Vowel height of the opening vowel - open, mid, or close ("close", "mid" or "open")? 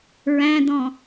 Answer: open